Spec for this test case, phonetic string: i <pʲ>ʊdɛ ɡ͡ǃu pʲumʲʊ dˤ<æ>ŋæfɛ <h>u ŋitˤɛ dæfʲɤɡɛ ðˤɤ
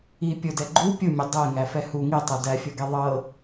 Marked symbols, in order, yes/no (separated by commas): yes, no, yes